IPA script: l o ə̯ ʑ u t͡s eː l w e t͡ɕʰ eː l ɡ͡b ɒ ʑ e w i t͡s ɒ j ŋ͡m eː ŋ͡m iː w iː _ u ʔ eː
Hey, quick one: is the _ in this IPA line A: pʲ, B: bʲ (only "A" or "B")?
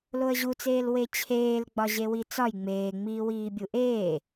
B